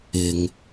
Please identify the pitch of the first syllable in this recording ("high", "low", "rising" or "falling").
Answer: low